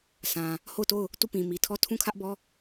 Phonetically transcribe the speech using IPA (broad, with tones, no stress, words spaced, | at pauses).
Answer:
sʰã˨ | ho˦˨ʊ̯to˦˨ʊ̯ | tu˦˨pĩ˨mi˨tʰɔ˦˨ tʰũ˦˨kʰä˦ʔbɔ˦